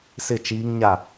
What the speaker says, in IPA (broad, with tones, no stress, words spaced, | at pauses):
sɪ˦˨t͡ʃiː˦ŋɲa˦˨